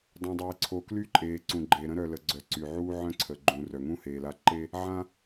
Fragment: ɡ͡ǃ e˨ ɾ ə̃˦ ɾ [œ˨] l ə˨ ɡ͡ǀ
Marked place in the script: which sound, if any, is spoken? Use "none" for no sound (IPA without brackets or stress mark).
œ˨